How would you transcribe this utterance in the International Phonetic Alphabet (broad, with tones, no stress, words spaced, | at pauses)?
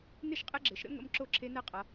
nɪ˥˨ʃqʼɪ˦˥ɡ͡ǁɘ˩˧ʃɾə̰˦˥ ŋə̰˦˥m ǁo˥˨ǁʰe˦˥nɛ˦˥ qʼʌ˩˧